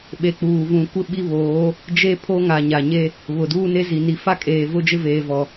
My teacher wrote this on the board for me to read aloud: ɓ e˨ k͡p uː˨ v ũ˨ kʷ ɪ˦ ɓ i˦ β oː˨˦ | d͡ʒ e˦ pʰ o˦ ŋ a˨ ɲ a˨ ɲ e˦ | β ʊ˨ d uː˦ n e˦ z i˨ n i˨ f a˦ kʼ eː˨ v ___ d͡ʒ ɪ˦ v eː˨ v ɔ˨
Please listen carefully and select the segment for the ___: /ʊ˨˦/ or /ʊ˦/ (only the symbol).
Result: ʊ˦